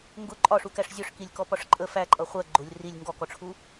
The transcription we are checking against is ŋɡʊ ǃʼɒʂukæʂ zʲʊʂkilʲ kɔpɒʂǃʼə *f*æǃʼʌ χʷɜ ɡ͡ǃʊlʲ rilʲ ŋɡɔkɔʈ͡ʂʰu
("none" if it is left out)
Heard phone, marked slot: f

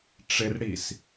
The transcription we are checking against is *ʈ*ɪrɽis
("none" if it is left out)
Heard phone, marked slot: ʈ͡ʂ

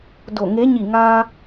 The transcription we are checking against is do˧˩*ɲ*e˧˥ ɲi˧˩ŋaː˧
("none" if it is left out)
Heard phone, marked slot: ŋ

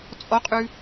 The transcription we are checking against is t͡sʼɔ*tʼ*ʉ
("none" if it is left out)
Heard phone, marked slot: qʼ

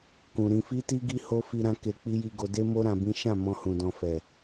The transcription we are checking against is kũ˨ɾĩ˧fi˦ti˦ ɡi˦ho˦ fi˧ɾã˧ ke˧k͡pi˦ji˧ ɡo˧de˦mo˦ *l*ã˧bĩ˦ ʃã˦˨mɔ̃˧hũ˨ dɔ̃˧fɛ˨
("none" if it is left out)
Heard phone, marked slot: ɾ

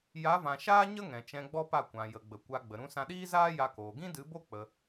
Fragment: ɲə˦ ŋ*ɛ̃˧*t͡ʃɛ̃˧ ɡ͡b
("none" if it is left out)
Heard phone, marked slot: ɛ̃˨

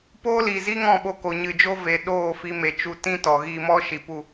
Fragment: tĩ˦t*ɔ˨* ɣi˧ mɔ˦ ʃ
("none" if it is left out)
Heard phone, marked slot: ɔ˨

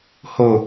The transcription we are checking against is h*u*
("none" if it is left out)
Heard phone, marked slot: o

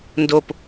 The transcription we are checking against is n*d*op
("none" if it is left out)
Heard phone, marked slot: d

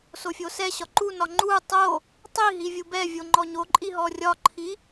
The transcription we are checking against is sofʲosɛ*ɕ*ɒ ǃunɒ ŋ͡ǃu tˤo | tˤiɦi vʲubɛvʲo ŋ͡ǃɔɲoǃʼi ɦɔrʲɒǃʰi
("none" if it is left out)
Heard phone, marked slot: ɕ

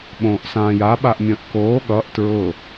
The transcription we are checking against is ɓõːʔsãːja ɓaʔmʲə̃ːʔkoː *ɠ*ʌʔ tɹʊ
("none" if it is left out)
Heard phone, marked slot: ɠ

